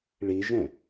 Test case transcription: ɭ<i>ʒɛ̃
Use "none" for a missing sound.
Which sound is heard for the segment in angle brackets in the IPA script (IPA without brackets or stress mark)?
i